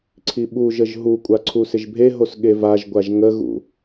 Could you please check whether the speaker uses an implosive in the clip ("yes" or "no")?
yes